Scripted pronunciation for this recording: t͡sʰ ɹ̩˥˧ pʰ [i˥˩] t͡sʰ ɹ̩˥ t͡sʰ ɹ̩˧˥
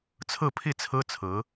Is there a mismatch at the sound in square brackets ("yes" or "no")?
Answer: no